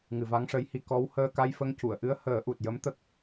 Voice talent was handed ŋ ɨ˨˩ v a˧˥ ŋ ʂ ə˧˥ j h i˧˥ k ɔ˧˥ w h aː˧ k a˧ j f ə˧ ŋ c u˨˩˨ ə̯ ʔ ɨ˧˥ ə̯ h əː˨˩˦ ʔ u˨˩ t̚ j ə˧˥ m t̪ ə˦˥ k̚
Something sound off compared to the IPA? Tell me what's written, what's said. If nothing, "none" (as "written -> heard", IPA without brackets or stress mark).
aː˧ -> əː˧